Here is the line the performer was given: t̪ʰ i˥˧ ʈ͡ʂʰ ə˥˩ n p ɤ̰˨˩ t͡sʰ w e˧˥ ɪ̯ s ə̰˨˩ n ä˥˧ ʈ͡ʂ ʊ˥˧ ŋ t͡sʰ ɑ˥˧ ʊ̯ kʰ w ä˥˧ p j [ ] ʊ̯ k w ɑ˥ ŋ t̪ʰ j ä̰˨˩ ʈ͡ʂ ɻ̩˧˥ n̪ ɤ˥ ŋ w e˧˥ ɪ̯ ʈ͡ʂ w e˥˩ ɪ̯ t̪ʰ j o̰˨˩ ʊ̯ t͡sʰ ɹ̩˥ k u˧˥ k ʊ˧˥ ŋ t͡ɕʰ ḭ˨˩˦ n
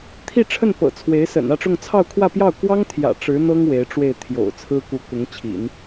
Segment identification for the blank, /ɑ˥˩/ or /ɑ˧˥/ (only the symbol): ɑ˥˩